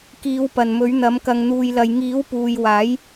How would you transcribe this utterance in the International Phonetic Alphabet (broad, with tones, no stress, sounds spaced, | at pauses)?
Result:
k iː˨˧ w p ɐ˨ n m ɵ˨˥ ɥ n̪ ɐ˨˥ m k ɐ˧ ŋ n̪ uː˧ j l ɐ˧ j ŋ iː˨˥ w p uː˨ j w aː˨˥ j